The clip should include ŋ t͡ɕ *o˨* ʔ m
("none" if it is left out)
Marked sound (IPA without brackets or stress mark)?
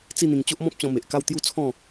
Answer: o˦